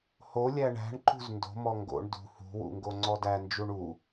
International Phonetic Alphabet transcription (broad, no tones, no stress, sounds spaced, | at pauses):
h o lʲ æ ɳ æ̤ ɳ ǃ ṳ z n d o̤ m ɔ ŋ ɡ o̰ ɳ d ṳ h ṳ w ṵ ŋ ɡ o ŋ͡ǀ ɔ d æ n d͡ʒ u ɳ u